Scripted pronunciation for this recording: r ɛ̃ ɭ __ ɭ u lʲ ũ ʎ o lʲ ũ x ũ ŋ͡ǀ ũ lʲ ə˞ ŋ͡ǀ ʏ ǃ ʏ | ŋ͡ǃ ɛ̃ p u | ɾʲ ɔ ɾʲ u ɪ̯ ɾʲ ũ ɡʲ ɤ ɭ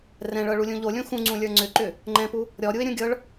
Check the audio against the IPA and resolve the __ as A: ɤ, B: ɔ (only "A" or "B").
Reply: A